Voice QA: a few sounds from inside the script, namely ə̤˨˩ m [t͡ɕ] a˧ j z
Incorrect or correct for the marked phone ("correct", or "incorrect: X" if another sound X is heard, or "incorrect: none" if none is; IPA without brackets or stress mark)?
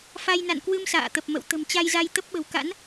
correct